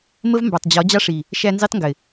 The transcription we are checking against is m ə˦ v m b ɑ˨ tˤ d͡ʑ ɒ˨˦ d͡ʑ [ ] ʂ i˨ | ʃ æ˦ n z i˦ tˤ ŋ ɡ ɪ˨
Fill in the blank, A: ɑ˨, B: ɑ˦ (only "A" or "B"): B